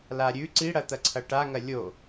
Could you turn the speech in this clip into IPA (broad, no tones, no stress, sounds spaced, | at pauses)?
l a ɾʲ ʉ ǀ i ɽ ɐ t̪ ɐ ǀʰ ɐ ʈ a ŋ ɐ lʲ o